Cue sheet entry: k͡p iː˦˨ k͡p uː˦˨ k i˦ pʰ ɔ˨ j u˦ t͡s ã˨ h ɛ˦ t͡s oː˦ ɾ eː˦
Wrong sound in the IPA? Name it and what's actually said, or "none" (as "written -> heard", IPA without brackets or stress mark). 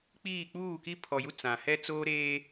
none